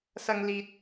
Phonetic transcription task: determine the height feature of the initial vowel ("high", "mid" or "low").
low